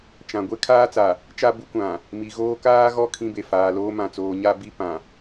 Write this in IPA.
t͡ʃ ã˨ ɡʷ e˦ kʰ aː˦ t͡s a˨ | t͡ʃ a˦ b u˦ kʷ ã˨ | m i˨ ɣ oː˦ k aː˦ ɣ ɔ˦˨ kʰ ĩ˦ b e˨ f aː˨ l oː˦ m ã˨ t͡s oː˨ ɲ a˦ b i˦ p ã˨

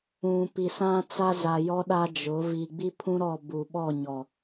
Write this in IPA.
ũ˨ p i˨ s ã˦ t͡s a˦ z a˨ j ɔ˦ ɗ a˦ d͡ʒ ʊ˨˦ v i˨ ɡ͡b i˦ pʰ ũ˦ ɾ ɔ˦˨ b uː˨ ɓ ɔ˦˨ ɲ ɔ˨

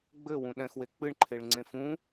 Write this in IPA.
ɡ͡b ɘ w ũ ɗ ɛ̃ x w e k͡p ɨ ɳ ǃʰ e ɭ ŋ͡ǀ ẽ f ũ

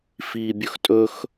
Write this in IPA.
f iː bʲ ɵ x tʼ ɵ x

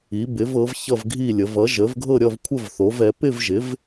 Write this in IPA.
i˩˥ b ɪ˩˥ v ɤ˩˥ v ç ʌ˥˨ v ɡʱ i˥˨ lʲ ə˩˥ v ʌ˩˥ ʒ ə˩˥ v ɡʱ ɤ˥˨ ɾʲ ʌ˥˨ v kʷʰ ə˥˨ v θ o˩˥ v ɛ˩˥ p ɪ˥˨ v ʒ ɪ˩˥ v

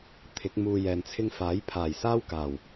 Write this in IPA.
t̪ʰ ɪ˨˥ k̚ m uː˨ j ɛː˨ n t͡sʰ ɪ˥ ŋ f aː˨˥ j pʰ aː˨˩ j s aː˥ w k aː˨˩ w

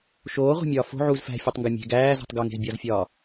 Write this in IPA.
ʃ oː ʁʷ æ̤ mʲ ɒː f o̤ ʕ u z f æ̤ fʲ u tˤ ŋ ɡ ɒ mʲ e̤ ɡ æː z ṳ tˤ ɡ o ŋ e̤ z bʲ ɒ z fʲ ɒː

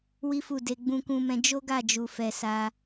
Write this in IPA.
w i˦ f u˦˨ d e˧ ɡ͡b ũ˧ k ũ˧ m ɛ̃˧ d͡ʒ o˦ ɡ a˦˨ d͡ʒ u˨ f ɛ˨ s a˧

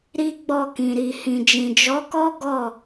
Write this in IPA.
ɾ i˦ ɡ͡b ɔ˦˨ k ĩ˨ ɾ i˨ h ĩ˨ d͡ʒ ĩ˨ d͡ʒ ɔ˨˦ k ɔ˦ ɡ ɔ˦˨

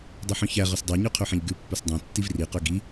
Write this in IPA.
dˤ ɵ ħ œ̃ ç æ ʁ ɵ s dˤ æ ɲ ø qʰ ø ħ ɛ̃ ʎ ɡ ʉ pː ɵ s dˤ œ̃ tː i v r i q œ ɡ i

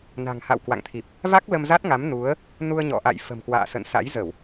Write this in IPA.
n a̤˨˩ ŋ h a̰˧˨ w k w a̰˧˨ ŋ t̪ʰ i˨˩ p̚ | v a˦˥ k̚ l ə˧ m z a˦˥ t̚ ŋ a˨˦ m n u˨˦ ə̯ | n u˧ ə̯ ɲ ɔ̰˧˨ ʔ a̰˧˨ j f ə̤˨˩ m k w a̰ː˧˨ s ə̰˧˨ n s a̰˧˥ j z ə˧˩˨ w

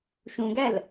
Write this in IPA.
ʃ ũ ɡ æ l

